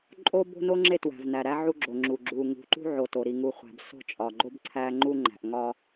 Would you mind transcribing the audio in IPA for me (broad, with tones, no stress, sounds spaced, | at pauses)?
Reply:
ǃʼ o˦ b o̤˦ n o˦ ŋ͡ǁ e˦ t w æ̤˨ v n æ˨ ɾ æ˦ ʕ u˦ ɡ͡ǁ o˨ ŋ͡ǁ u˨ ɡ͡ǁ u˨ ŋ ṳ˨ ǃ ṳ˦ ʕ o˨ t o˨ ɾ i˨ ŋ u˨ χʷ æ̤˨ b s o̤˦˨ t͡ʃʼ ɒ˨ ɡ͡ǃ o˦ b ǀʰ æ˦ ŋ͡ǃ u˦ ŋ͡ǃ æ̤˨ ʔ ŋ ɒ˦